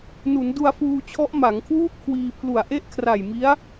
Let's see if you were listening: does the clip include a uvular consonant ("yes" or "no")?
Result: no